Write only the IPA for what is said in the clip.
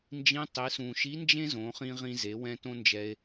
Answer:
n d͡ʒ ĩ˧˥ tˤ i˩˧ s ũ˩ ʃ i˧˥ n d͡ʒ ẽ˥ z õ˩˧ χ ĩ˧ ʁ ĩ˧ z e˩˧ w ɛ̃˧ t õ˥ n d͡ʒ ɛ˧ e̯

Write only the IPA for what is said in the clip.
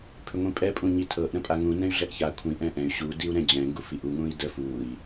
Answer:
pʰ ʏ ŋʷ ĩ pʼ ɛ pʼ ũ ɲ i tʰ ɤ ʔ ɾ ə̃ pʼ a ŋ ũ n ɛ̃ y̯ ɮ ɛ ʔ ç a kʷʰ ĩ ʔ ɛ̃ ʔ ɛ̃ y̯ ɕ u d i u̯ ɾ ɛ̃ d͡ʑ ɛ̃ ŋ ɡ u f i ʔ u ŋ ũ i̯ d ə f u i̯

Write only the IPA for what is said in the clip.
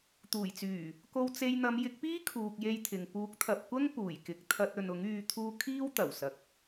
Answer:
t̪ uː˨˩ j t͡s yː˨˩ | k o˧ w t͡s e˧ j n̪ ɐ˨˧ m j ɪ˨˥ k̚ p iː˥ kʰ uː˧ k̚ j e˥ j t̪ʰ ɪ˨ ŋ p uː˨˥ k̚ t̪ʰ ɐ˨ p̚ kʷ ɐ˥ ŋ p uː˨˩ j k ɪ˨ k̚ t̪ʰ ɐ˧ t̚ ɵ˨ n ʊ˨˥ ŋ yː˧ t̪ʰ uː˧ kʰ iː˥ w t̪ ɐ˨˩ w s ɐ˨ k̚

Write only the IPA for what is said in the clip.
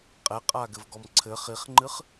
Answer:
qʼ ɛ qʼ a ɡ ɘ v ɡ ɔ m ǀʰ ɘ χ i χ ŋ͡ǃ ɨ χ

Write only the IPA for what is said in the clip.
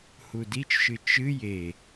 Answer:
h u d i t͡ʃ ʃ ɨ t͡ʃ ɨ j e

